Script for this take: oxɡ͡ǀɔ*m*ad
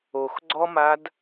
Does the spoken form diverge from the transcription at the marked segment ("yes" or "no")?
no